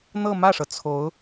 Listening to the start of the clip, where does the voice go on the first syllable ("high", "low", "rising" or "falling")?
falling